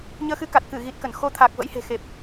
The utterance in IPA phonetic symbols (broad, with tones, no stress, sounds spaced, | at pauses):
ɲ əː˧ x ɨ˨˦ k a˨˩ t̚ k ɨ˧˩ ɣ i˨˩ t̚ k ə˧˩ n x o˨˦ t̪ʰ a˨˩ k̚ v ə̰˧˥ j h e̤˨˩ x e˨˩ p̚